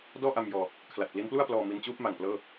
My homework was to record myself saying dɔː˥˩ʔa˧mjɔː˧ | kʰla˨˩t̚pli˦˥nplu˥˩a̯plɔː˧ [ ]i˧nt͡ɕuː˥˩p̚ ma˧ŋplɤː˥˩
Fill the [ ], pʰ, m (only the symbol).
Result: m